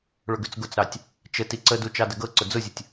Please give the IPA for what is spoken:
ɭʊɡʉt͡sɡʊt͡sɾɑtʲ | t͡ʃə tiǀədu t͡ʃɑdəɡɤǀʊ d͡zʊzʲətʲ

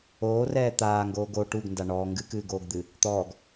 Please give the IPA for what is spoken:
oːrɛː t̪aːŋɡoːɡ o ʈuɡnda ɳɔː ŋɡɨkɨːɡoːɡd̪ɨ | t̪ɔːɡ

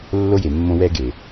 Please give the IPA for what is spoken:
lːo˦je˨mːõ˦ wɛ˦ɡe˨

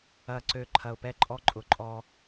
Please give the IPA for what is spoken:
ɐ˨ǀø˨ ǃʰɐ˨ʊ̯pɛ˦ǃʼɔ˦ǃʼʊ˨ ǃʼɔ˦

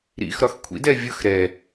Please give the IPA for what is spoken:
ɾḭxɾɒx kʷʰḭdɛ vʲʊx ɾɛ

